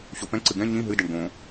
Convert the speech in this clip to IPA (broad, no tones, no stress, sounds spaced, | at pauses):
ɕ o p ɛ̃ ǀ ɨ ɡ ɛ̃ ɲ ĩ ɦ ɨ d ɛ ɳ ɡ õ